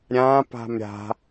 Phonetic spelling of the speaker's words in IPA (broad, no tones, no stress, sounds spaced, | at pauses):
ɾʲ ã p a̤ m ɾʲ a̤